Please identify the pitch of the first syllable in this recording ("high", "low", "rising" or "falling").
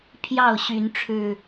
falling